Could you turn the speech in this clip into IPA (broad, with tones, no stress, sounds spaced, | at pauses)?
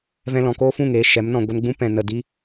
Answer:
v ɛ̃˧ l ɔ̃˨ k oː˦ f ũ˦˨ ŋ eː˧ ʃ ɛ˨˦ m n ɔ̃˧ ɡʷ ə˧ n ɡ͡b ũ˦ p ɛ̃˨ n ə˨ d i˦